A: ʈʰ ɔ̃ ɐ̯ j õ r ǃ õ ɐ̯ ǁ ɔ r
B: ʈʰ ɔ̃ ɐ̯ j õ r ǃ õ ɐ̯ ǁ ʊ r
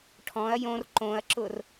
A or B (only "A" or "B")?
B